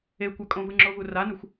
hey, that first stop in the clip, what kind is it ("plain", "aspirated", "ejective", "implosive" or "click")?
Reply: plain